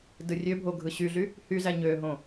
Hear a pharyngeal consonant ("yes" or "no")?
no